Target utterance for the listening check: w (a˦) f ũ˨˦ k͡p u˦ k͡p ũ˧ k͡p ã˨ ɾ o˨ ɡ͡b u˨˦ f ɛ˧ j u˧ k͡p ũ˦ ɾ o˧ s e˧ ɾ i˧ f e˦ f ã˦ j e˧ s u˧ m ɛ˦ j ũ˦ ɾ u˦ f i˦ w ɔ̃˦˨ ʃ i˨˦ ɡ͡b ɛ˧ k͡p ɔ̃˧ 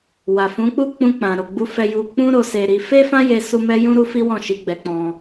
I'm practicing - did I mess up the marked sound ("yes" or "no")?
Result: yes